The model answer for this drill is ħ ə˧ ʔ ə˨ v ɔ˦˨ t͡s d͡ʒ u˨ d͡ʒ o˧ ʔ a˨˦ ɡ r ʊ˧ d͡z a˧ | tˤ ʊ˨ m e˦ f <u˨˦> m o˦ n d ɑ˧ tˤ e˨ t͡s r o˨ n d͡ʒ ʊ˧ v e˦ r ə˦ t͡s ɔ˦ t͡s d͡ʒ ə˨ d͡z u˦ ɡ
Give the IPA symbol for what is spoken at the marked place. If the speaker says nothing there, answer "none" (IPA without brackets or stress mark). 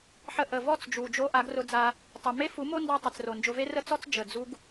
u˨˦